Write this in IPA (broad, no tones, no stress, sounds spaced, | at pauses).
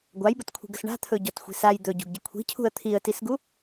ɡʷ a j b ə t kʷʰ i̤ ɡ ə s ɳ a̤ t̪ʰ ɵ ɟ ɔ t xʷ i̤ s a j d̪ ɵ ɟ ṳ ɡ ɟ ə kʷʰ i̤ cʰ ṳ ə̯ t̪ʰ i ə̯ t i s ɡ u